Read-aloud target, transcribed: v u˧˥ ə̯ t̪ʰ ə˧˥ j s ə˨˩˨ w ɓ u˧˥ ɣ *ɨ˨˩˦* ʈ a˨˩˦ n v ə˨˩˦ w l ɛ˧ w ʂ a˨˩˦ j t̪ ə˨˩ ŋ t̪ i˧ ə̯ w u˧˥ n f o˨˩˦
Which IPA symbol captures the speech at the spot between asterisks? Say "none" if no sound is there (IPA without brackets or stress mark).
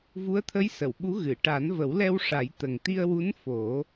ɨ˨˩˨